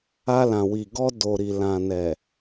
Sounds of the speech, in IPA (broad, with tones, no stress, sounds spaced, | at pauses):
a˧ l ã˨ w i˨ ɡ ɔ˧ d o˨ ɾ i˨ l ã˨ n ɛ˨